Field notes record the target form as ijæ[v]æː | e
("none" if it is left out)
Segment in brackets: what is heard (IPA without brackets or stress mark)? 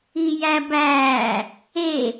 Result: b